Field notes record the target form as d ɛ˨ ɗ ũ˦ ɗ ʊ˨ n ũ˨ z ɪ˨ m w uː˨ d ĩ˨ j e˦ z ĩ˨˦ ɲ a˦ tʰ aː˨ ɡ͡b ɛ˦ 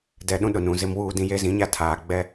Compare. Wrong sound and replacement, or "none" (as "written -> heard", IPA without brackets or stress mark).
none